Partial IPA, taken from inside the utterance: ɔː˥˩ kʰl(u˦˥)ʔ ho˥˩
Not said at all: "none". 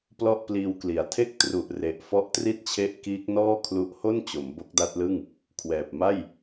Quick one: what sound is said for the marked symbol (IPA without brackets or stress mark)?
u˦˥